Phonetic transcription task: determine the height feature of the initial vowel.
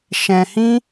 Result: mid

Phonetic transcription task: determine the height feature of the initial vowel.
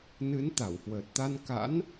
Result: high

